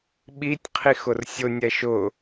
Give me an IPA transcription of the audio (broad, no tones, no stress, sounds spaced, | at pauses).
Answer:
ɓ i tʲ qʰ i x ʊ r sʲ ʊ nʲ ɛ ʃ ʊ